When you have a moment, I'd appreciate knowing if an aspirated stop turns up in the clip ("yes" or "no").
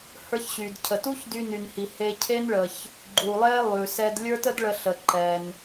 yes